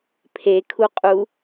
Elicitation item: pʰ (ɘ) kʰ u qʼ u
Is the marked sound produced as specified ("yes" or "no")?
no